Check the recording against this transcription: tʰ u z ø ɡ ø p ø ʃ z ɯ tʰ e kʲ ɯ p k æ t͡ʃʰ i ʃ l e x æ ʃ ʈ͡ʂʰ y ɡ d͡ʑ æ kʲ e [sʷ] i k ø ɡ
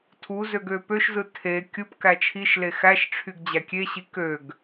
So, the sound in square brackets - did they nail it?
no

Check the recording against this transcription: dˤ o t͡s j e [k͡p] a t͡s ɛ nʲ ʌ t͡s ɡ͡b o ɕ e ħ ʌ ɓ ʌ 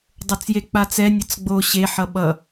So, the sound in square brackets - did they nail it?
yes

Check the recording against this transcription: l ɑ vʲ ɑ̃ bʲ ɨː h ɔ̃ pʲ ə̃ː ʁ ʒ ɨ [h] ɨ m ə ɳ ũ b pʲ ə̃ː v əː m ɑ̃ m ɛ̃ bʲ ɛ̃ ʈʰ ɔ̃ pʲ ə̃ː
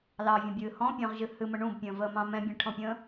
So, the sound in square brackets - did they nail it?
yes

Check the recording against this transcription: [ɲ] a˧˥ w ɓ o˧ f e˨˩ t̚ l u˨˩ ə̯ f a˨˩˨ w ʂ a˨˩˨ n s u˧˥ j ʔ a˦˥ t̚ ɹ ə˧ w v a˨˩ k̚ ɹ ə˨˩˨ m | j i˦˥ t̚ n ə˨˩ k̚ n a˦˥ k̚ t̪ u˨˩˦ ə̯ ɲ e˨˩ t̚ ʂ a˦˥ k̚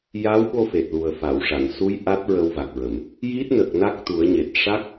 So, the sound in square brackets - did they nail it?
no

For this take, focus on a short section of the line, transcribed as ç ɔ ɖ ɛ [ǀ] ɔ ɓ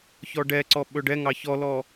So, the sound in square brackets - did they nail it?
yes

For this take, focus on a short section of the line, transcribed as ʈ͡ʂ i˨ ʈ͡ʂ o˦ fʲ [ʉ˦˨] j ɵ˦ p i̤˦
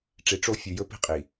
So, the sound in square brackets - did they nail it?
no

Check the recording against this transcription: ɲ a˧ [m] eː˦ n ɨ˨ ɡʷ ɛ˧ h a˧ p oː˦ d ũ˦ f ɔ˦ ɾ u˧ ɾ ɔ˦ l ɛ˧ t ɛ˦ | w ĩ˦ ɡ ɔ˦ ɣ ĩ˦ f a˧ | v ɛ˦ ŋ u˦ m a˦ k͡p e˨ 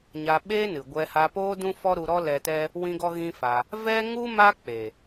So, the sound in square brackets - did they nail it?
no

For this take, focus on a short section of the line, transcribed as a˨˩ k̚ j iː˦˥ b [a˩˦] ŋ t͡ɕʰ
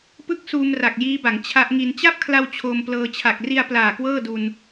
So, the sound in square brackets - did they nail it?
yes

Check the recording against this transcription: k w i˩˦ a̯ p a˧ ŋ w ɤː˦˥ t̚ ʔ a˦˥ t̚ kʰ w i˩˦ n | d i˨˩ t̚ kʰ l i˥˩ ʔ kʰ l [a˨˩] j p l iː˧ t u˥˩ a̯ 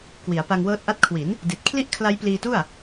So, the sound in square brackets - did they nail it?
no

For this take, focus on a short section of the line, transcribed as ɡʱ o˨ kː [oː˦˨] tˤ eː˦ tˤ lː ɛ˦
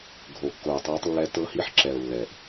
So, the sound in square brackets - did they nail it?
no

